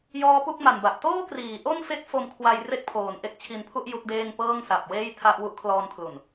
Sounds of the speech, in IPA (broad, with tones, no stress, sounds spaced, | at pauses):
j ɔː˦˥ p u˥˩ k̚ m a˨˩ n b a˨˩ ʔ t oː˥˩ k r iː˩˦ ʔ o˥˩ n f e˦˥ k̚ f o˧ m kʰ w a˧ j r e˥˩ k̚ pʰ oː˨˩ n ʔ e˥˩ k̚ t͡ɕʰ i˧ n pʰ u˥˩ ʔ j u˦˥ k̚ d eː˥˩ ŋ p ɤː˥˩ ŋ s a˨˩ p̚ w eː˥˩ j tʰ a˥˩ ʔ w u˦˥ ʔ kʰ l ɔː˧ n kʰ l u˨˩ n